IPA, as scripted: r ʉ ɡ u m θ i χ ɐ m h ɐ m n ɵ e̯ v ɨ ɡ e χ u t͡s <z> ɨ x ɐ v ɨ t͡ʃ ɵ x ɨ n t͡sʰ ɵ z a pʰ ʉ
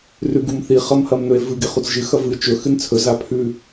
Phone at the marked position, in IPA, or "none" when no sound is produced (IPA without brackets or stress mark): ʒ